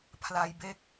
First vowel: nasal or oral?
oral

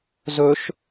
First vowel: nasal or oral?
oral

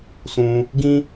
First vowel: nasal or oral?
nasal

